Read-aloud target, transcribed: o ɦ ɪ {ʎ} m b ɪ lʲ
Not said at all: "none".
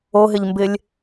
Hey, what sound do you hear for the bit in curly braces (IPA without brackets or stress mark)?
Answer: ʎ